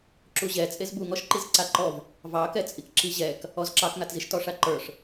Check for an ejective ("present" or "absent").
present